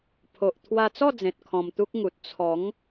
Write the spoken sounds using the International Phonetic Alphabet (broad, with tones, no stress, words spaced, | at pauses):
pʰo˨ʔ t̪ʰwa˧t͡sɔ˥˧d͡zẽ˨t̚ kʰɔ̃˧mt̪u˦k̚ŋu˨t̚ t͡sʰɔ˨˦ŋ